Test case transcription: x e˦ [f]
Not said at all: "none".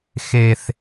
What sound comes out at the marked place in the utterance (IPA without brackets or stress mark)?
θ